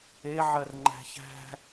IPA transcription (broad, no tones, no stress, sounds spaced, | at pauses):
e ʕ ɜ r ŋ͡ǃ æ̤ ç æ̤